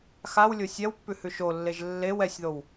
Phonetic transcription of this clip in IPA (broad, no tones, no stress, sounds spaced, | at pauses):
x a w lʲ o sʲ ɛ w pː ʉ h ʉ ʃ o lː e ʒ lː e w ɛ sʲ ð o w